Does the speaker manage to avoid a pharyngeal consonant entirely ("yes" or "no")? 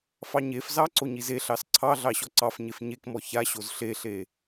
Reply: yes